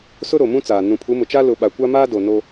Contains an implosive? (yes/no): yes